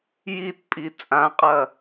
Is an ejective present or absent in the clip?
present